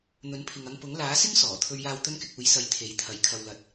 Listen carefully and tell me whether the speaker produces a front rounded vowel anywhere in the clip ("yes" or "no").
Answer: no